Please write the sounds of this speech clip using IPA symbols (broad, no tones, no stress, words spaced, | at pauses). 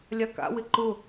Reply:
lʲaka̰wɪ ǃʊ